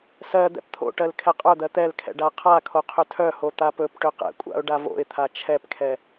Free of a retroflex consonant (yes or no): no